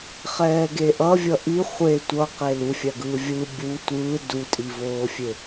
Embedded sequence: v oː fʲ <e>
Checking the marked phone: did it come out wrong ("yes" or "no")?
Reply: no